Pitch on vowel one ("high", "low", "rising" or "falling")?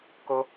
high